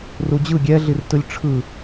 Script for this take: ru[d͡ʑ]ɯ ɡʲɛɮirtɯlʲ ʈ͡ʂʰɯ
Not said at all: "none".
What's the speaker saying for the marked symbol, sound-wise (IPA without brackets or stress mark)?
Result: d͡ʑ